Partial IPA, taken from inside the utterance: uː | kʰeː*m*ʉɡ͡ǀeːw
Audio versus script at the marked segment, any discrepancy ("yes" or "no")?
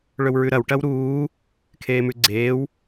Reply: no